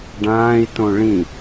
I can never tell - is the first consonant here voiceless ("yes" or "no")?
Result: no